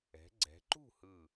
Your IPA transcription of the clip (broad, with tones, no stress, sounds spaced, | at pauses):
ɛ̤˩˧ ɡ͡ǀ ɛ̤˩˧ ǃ ṳ˥˨ h ɯ˧˩